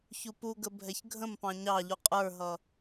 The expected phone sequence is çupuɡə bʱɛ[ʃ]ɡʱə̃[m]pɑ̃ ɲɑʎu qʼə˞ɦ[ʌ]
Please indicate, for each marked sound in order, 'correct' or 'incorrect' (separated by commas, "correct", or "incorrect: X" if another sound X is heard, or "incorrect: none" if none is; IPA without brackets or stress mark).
incorrect: ç, correct, correct